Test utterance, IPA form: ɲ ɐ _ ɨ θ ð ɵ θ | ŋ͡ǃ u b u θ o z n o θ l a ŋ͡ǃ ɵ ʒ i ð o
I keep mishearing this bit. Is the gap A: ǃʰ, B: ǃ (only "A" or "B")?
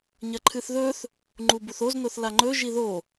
A